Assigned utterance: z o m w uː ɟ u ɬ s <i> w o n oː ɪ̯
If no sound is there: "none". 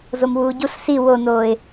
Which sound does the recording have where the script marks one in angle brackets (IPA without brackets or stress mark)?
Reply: i